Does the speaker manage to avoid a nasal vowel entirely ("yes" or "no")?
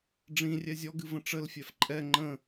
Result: no